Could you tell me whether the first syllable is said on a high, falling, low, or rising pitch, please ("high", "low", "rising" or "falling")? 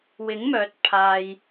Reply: rising